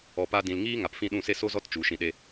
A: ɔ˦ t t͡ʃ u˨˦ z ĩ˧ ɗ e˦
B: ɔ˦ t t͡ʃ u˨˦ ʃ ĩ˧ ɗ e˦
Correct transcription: B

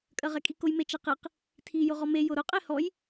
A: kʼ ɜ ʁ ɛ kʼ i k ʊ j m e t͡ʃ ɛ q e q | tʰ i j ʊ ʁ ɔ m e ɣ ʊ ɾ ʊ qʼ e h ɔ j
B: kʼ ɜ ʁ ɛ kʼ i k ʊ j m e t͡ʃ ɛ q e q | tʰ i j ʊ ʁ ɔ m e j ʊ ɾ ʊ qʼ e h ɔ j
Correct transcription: B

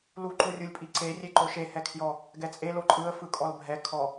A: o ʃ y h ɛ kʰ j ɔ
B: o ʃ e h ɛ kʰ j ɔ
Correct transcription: B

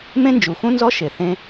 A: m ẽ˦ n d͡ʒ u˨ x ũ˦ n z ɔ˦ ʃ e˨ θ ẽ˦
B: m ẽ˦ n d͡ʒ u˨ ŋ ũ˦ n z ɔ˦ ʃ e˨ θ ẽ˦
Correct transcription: A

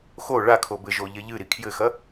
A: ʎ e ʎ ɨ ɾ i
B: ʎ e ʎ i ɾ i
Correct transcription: A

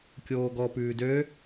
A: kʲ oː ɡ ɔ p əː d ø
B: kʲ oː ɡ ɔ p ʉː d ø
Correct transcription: B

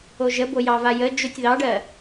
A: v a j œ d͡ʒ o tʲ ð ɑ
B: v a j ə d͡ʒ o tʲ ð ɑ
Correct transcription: B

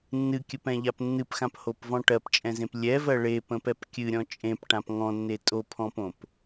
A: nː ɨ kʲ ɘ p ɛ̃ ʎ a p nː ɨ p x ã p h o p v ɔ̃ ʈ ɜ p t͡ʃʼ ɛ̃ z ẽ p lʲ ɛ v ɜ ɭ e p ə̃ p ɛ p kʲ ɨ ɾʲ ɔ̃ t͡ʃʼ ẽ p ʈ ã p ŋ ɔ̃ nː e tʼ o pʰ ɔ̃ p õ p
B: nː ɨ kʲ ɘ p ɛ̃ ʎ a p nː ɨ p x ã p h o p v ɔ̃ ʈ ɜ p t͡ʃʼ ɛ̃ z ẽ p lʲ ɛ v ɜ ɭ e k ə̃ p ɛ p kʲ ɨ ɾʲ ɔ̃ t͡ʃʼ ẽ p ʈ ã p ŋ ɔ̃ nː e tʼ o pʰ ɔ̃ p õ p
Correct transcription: A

